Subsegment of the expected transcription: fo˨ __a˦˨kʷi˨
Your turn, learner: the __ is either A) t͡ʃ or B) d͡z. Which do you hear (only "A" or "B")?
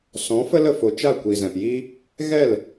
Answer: A